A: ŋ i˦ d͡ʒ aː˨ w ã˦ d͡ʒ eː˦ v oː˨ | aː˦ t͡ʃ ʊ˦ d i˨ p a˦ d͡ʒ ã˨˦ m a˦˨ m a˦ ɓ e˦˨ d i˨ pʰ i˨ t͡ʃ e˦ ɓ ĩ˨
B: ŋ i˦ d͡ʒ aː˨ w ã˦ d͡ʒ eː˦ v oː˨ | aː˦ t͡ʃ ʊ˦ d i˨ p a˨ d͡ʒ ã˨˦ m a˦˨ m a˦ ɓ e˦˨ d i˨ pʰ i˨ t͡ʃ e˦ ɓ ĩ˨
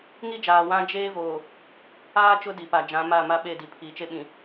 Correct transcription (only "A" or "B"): B